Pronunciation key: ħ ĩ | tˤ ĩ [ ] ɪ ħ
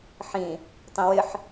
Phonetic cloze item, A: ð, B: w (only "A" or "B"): B